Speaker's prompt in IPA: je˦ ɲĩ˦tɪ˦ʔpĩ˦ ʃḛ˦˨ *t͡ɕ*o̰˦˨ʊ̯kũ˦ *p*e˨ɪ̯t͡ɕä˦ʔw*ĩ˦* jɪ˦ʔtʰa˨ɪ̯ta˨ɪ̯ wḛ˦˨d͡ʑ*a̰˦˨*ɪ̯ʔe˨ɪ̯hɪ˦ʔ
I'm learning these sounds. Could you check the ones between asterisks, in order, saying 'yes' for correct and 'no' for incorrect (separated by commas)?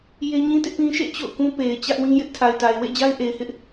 yes, yes, yes, no